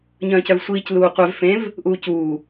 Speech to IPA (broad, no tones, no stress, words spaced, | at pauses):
ɲœ̃ːcœvsʷiːc luːqʷɛv fẽv | ʔuːcuː